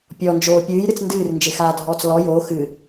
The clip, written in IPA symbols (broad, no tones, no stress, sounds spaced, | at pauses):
pʲ ɔ n d͡ʒ oː pʲ ɨː j ɾ ɨ t͡s n d ɨː r n d͡ʒ ɪ x aː dʱ ɔː t͡s l ɔ j oː x ɨ